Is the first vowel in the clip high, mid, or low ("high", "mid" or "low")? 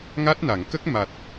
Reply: low